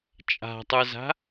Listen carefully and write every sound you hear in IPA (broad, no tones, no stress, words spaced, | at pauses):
t͡ʃʼa̤tˤə˞za̤